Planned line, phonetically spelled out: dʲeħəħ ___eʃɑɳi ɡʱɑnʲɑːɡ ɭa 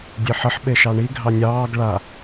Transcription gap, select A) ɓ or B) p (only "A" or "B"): A